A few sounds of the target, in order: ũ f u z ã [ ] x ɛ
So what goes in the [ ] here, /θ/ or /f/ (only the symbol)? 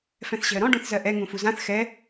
θ